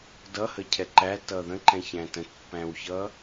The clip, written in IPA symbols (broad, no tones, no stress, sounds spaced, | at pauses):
d ʌ h ə cʰ ɛ ǃ æ t ʌ ð ə̃ ǃ ɛ̃ ç æ̃ t ə̃ t pː æ̃ w ç ʌ